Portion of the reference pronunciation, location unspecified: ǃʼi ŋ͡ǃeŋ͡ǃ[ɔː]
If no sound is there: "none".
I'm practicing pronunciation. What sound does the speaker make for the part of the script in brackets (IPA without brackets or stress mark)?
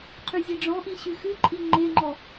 ɔ